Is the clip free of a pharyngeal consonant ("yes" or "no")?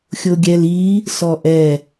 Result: yes